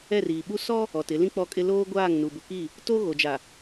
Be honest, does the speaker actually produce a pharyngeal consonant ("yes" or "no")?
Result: no